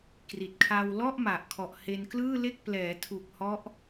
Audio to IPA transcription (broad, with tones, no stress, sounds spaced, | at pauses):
k r i˨˩ t̚ kʰ a˧ w l ɔ˥˩ ʔ m a˨˩ ʔ kʰ ɔ˨˩ ʔ h e˧ n k l ɯː˥˩ l e˥˩ k̚ p l ɛː˩˦ tʰ u˨˩ k̚ h ɔ˦˥ ʔ